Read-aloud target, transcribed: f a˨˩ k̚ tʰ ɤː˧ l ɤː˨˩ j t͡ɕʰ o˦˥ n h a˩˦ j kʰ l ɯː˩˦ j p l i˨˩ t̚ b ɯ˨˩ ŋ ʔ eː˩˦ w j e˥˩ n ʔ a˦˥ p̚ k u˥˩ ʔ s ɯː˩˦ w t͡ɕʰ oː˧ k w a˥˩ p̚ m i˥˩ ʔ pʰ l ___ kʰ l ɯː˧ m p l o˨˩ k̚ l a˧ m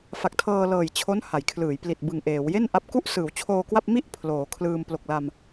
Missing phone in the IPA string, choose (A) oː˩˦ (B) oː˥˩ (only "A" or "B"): A